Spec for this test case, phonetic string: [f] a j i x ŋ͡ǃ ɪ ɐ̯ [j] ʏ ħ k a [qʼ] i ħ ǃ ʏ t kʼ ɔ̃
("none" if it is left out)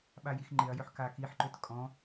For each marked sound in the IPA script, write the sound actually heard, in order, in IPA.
ɓ, j, k

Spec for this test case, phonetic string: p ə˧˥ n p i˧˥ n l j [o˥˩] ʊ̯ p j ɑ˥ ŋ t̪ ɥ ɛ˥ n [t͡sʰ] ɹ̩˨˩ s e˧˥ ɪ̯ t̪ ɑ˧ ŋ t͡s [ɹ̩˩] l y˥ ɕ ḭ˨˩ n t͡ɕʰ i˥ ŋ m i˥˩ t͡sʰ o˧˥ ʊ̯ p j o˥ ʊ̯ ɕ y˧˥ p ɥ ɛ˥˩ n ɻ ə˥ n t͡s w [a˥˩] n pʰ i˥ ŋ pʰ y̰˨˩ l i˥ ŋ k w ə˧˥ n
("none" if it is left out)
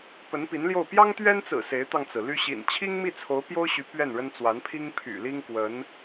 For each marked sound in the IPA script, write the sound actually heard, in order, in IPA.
o˥˩, t͡s, ɹ̩˩, a˧˥

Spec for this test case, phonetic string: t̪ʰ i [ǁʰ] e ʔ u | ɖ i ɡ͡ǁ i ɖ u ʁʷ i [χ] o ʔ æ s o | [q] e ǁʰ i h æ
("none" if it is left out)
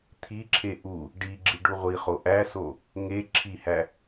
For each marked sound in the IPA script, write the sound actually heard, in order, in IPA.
ǁʰ, χ, ŋ

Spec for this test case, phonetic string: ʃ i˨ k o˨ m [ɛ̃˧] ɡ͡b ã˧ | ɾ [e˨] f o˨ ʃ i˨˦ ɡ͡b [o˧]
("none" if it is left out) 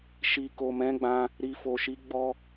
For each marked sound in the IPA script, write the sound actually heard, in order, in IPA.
ɛ̃˨˦, i˨, ɔ˧

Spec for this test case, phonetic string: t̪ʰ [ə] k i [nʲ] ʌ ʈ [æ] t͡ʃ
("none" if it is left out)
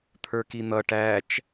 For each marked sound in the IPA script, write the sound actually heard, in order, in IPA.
ə˞, n̪, æ

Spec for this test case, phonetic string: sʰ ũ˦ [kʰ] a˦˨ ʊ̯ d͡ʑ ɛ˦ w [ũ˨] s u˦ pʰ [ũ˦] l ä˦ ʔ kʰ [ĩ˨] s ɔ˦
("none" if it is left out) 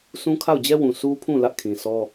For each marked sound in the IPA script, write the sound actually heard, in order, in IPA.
kʰ, ũ˨, ũ˦˨, ĩ˨

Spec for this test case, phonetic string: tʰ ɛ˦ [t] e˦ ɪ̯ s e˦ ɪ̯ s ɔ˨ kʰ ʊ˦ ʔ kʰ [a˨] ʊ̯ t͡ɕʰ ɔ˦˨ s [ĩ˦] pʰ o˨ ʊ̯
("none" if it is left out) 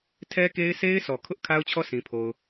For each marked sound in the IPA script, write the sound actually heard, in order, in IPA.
k, a˦, ĩ˨

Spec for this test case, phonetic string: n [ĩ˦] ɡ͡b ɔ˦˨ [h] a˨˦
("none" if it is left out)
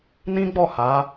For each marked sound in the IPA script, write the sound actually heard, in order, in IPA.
ĩ˦, h

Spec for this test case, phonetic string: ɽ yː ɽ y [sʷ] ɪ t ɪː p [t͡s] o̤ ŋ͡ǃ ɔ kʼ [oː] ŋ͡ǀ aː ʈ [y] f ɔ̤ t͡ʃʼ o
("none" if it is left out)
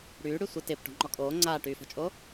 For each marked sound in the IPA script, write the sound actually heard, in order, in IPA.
sʷ, ʈ, oː, yː

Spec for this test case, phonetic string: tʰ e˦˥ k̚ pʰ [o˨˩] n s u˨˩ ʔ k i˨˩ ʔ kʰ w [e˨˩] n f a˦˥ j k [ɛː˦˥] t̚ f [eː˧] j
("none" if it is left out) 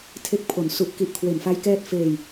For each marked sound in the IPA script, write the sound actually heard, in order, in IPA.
o˨˩, e˨˩, ɛː˦˥, eː˧

